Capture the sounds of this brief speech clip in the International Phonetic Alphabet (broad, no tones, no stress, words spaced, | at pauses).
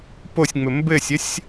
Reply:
posʲŋ͡mɘ mbɘsʲəsʲ